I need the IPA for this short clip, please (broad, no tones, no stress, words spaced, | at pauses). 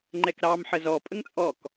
ŋ͡ǃɛkɾɑm ħəzɔ pʼəŋt͡sʼɔk